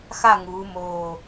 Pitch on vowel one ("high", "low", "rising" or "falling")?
falling